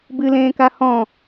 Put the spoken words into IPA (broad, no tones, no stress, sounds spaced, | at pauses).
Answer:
b ɨ l ẽː k a h ɔ̃